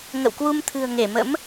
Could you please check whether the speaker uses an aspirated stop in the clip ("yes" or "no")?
yes